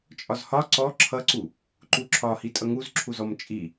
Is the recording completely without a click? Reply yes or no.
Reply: no